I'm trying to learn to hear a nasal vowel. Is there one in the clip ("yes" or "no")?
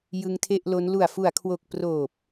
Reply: no